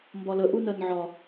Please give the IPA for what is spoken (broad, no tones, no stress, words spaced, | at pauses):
mbɒlə ʔunɜnʕɒ